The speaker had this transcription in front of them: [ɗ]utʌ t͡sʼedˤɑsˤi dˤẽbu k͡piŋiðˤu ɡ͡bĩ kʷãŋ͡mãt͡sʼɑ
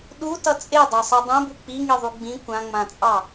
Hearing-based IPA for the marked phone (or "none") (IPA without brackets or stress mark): ɗ